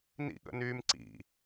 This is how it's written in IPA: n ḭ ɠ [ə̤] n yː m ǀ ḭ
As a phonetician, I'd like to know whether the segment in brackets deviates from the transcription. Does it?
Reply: yes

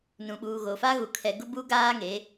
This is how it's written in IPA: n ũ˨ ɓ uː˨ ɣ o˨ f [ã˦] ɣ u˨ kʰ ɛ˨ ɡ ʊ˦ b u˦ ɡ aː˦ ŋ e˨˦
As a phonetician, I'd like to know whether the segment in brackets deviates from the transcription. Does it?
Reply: yes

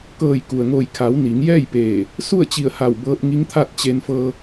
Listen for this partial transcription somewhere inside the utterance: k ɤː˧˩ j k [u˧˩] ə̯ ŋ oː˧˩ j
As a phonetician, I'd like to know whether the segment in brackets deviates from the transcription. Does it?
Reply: yes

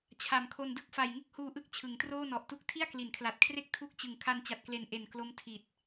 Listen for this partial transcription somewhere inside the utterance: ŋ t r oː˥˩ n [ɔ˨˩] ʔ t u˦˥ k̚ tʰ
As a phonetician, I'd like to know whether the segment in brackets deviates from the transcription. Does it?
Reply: no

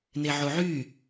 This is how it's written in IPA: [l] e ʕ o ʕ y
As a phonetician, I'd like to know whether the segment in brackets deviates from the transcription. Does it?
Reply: yes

